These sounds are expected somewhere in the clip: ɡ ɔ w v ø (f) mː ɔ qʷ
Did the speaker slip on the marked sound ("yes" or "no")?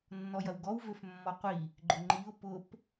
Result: no